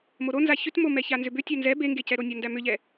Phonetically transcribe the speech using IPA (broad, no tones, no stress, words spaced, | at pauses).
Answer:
moɾonza çʏtmomɛ çanzʏbʏ tʲænzɛ beŋɡecɛɾo nʲandæmʏʎɛ